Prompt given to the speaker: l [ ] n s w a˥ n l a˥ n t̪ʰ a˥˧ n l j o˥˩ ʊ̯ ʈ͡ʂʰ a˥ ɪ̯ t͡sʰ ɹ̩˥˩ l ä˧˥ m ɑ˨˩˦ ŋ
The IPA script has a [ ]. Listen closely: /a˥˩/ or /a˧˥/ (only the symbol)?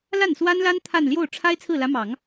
a˥˩